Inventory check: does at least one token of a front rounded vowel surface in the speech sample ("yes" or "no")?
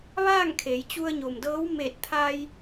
no